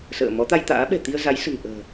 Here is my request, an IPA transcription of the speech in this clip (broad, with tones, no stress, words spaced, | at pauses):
sə̰ː˧˨ mɔ˨˦t̪a˧jt̪a̰ː˧˥ɓɛ̤˨˩ t̪i˧ə̯za˨˦jsə̤˨˩nʔə̤ː˨˩